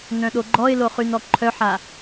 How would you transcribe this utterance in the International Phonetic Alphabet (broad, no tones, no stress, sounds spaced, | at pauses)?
n œ̃ ɗ o ɡ͡ǃ ɔ ɪ̯ l o χ y n ɔ ǃʰ œ ħ a